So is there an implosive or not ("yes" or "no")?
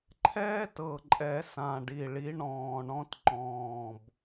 no